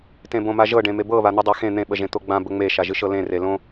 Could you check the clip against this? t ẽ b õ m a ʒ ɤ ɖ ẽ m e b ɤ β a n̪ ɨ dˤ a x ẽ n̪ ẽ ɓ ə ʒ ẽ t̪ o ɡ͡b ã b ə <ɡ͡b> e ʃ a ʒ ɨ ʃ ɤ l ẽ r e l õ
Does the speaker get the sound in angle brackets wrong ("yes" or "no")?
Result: yes